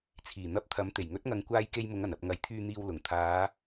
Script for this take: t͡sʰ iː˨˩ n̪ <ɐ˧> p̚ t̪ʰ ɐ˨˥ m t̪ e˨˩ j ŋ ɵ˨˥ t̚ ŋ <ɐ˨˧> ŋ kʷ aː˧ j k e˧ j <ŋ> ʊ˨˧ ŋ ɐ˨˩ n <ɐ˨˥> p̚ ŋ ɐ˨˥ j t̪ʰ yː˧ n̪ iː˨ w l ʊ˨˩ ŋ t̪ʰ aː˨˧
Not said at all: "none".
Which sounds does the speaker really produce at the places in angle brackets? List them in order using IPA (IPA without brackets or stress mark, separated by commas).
ɐ˧, ɐ˨, m, ɐ˨